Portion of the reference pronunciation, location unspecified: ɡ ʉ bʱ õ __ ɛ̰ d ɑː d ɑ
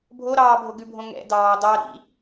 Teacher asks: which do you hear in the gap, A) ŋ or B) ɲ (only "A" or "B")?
A